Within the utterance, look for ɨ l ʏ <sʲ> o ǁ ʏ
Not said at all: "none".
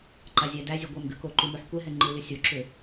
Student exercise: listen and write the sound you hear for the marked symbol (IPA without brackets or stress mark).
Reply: sʲ